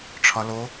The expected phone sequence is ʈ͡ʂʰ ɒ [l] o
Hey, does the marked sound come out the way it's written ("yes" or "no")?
yes